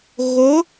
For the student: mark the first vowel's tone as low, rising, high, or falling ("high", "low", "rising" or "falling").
rising